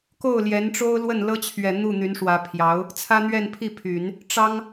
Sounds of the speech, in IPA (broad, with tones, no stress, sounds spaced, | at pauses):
k o˥˩ ʊ̯ l j ɛ˧˥ n ʈ͡ʂ o˥ ʊ̯ l w ə˥˩ n l ɤ˥ t͡ɕʰ ɥ ɛ˨˩ n̪ u˥˩ n̪ y˧˥ n ʂ w ä˧˥ pʰ j ɑ˧˥ ʊ̯ | t͡sʰ ä˥ n̪ ɥ ɛ˥˧ n pʰ i˥˩ pʰ y˨˩˦ n | ʈ͡ʂ ɑ˥ ŋ